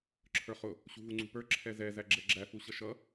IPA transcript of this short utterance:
ǁʰ ə˞ χ ʊ | ɕ ṳ v u ŋ͡ǀ ṳ p ə˞ ǁʰ ɛ z ɛ z æ ɡ͡ǁ ɛ ɡ͡ǁ æ f u ɕ ʌ ʃ ʌ

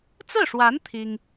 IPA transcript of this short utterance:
t͡s ɹ̩˥˩ ʂ w a˧˥ n t̪ʰ i˥ ŋ

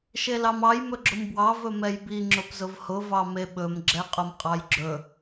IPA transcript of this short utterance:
ʃ e l ɑ m ɑ j m ɵ ɡ͡ǁ ʊ m b w ɑ v ɵ m ɛ j b i ŋ͡ǁ ʊ p z ʊ v h ʊ v ɑ m e ɓ ɵ m ɡ͡ǁ ɛ qʼ ɵ m qʼ ɑ j ɡ͡ǁ ɵ

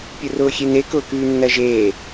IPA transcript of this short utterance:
pʲ ʊ r ʊː xʲ e n e k ʊː k yː nː ɜ ʒ eː

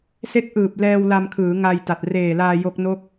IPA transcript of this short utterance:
s e˦˥ k̚ ʔ ɯː˨˩ p̚ l ɛː˧ w l a˧ m kʰ ɯː˩˦ ŋ a˧ j t a˨˩ t̚ r eː˨˩ l aː˧ j o˦˥ k̚ n o˥˩ k̚

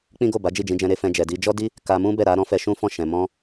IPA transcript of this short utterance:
k͡p ĩ˦ ɡ o˦˨ b a˨˦ d͡ʒ i˦˨ d͡ʒ ĩ˧ d͡ʒ ɛ̃˧ ɾ e˧ f ɛ̃˧ d͡ʒ ɛ˨ d i˧ d͡ʒ ɔ˦ d i˦ | k a˧ m ũ˦ b ɛ˦˨ ɾ a˨˦ ɾ ɔ̃˦ f ɛ˧ ʃ ũ˦ f ɔ̃˦˨ ʃ ɛ̃˨ m ɔ̃˧

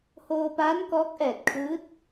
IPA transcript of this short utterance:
h oː˧ p aː˧˥ n k ɔː˧˥ k̚ ʔ ɛː˧˩ t̚ kʰ ɯː˧˥ t̚

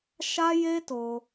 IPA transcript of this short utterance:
ʃ a˦ j e˦ t o˧

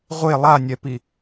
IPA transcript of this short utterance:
ʁʷ e lˠ a nʲ ɛ p i

